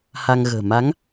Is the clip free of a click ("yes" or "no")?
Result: yes